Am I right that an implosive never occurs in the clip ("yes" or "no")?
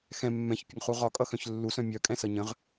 yes